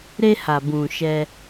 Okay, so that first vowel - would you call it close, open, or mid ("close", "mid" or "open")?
mid